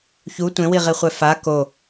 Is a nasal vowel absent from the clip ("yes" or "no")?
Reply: no